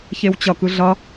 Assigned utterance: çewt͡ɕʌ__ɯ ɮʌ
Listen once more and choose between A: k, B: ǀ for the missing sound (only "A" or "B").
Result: A